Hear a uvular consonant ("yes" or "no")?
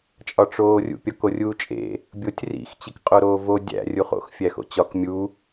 yes